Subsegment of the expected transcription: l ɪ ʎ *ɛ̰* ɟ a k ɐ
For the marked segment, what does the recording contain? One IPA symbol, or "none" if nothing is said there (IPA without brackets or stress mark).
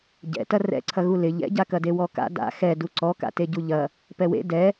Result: ɛ̰